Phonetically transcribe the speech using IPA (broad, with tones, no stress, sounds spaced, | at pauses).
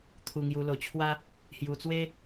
t̪ʰ u˧ ŋ j u˧ l o˧ t͡ɕʰ w a˦ | h j u˧ t͡s w e˦